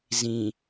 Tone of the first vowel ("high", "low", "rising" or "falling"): low